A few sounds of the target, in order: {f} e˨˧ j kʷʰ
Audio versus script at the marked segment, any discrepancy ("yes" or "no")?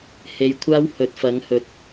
yes